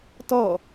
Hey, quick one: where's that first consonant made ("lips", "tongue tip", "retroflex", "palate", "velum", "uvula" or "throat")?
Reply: tongue tip